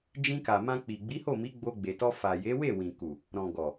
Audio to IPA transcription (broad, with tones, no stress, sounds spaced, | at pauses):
d͡ʒ ĩ˧ k a˨ m ã˧ k͡p i˨ ɡ͡b i˨˦ h o˦˨ m i˨˦ ɡ͡b o˧ ɡ͡b e˨ t ɔ˧ f a˨ j e˨˦ w e˦˨ w ĩ˨ k u˨ | ɾ ɔ̃˨ ɡ ɔ˨